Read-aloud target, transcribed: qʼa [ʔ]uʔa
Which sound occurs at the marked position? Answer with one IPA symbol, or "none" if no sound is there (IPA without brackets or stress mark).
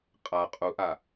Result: qʼ